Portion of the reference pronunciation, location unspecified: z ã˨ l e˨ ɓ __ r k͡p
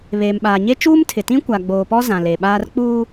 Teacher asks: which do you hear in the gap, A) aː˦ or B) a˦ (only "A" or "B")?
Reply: A